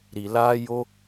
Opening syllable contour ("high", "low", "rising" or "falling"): low